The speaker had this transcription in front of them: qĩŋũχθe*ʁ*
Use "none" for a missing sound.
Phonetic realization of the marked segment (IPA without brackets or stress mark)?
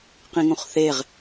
ʁ